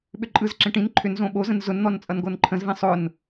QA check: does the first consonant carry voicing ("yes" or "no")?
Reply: yes